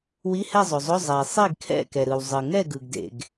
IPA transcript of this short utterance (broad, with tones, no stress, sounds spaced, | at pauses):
w i˧˥˧ h ɛ˥˨ zˤ o˩ zˤ o˧˥˧ zˤ ɛ˩ e̯ sˤ i˥˨ ɡ kʰ ɛ̰˥˨ k ɛ˩ ɾ ɯ˩ w zˤ ɯ˩ ŋ ɛ˥˨ ɡ ɯ˩ ɡ d ḛ˩ ɡ